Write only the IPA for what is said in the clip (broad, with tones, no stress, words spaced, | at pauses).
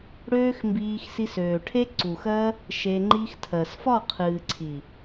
ɽøː˦xmbiː˧x si˧søː˨ʈʰe˦ ǀu˨xɜ˦ | ʃe˧ŋ͡ǃi˦xtʰɜ˨s fɒ˦˨qʰɨː˨ǀʰi˨